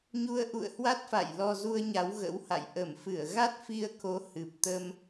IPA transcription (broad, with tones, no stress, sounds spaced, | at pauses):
ɲ u˧ ə̯ ʔ ṵ˧˨ ə̯ h w a˦˥ t̚ f a̰˧˨ j l ɔ˧ z u˧ ə̯ ɲ a˨˦ w ɣ ə̰˧˥ w h a̰˧˨ j ʔ ə˧˩ m f ɨ˧˩ ə̯ ɣ a˦˥ t̚ f i˧ ə̯ k o˨˦ h ɨ˨˩ p̚ t̪ ə˧ m